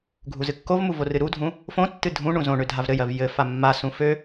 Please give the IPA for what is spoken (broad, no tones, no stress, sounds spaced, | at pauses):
ɡʱ u z ɨ kː o v m u v o r ɨ ɾ u dʱ ũ | f õ tː ɨ dʱ ũ ɳ ũ z õ ɳ ø dʱ a v ɾ ɘ j ɜ v j ɘ f a mː a s ũ f ø